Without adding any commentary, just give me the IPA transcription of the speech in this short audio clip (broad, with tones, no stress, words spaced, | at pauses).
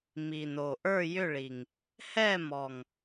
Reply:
mi˨˩no˨˩ ʔə˞˥˨ jʏ˥˨ɭi˨˩ŋ | hɛ˥˨mɔ˨˩ŋ